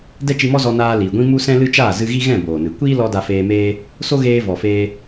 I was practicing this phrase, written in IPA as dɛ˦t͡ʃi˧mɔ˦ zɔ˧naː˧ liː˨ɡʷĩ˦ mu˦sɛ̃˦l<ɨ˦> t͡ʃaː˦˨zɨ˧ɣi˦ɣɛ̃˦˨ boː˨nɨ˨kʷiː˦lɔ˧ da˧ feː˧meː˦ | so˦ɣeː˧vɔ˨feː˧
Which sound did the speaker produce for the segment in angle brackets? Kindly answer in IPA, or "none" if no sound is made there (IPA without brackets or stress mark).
ɨ˦